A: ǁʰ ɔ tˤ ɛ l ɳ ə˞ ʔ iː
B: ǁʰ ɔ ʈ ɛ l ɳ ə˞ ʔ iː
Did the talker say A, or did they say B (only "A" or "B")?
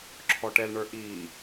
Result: B